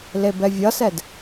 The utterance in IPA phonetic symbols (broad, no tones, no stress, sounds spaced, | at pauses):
l e b ɛ vʲ ʌ s ɛ d